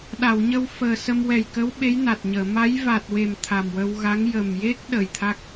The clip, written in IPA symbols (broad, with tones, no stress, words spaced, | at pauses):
ɗa˨˩˨wɲə˧w fəː˨˩sə˧mwɛ˨˩jkə˧˥w ɓe˧˥jna˨˩t̚ɲəː˨˩˨ ma˧˥jva˨˩t̚we˨˩m t̪ʰa˨˩mwə˧wɣa˧˥ŋ jə˨˩mje˦˥k̚ ɗəː˨˩jt̪ʰa˦˥k̚